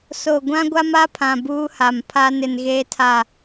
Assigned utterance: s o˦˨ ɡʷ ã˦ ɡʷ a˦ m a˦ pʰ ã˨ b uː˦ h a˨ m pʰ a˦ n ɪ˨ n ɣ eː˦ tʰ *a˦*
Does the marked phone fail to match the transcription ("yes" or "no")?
yes